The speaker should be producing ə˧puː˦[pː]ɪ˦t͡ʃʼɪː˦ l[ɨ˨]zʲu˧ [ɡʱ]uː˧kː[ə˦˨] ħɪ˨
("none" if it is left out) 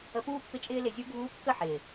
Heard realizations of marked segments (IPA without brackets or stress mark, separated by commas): pː, ɪ˨, ɡʱ, ə˦˨